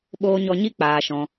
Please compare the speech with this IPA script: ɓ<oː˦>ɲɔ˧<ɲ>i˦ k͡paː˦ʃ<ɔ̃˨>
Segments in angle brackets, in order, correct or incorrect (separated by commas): incorrect, correct, incorrect